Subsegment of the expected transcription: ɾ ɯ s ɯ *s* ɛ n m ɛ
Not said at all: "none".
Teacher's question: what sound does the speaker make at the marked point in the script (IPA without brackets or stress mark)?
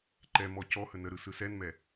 s